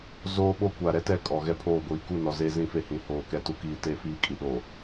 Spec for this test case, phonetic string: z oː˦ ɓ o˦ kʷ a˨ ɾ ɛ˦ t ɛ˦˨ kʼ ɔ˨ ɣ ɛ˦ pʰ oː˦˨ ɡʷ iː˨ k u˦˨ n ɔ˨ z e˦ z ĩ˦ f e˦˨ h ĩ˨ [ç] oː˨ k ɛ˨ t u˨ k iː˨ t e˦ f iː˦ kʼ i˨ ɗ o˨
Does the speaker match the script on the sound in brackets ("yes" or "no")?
no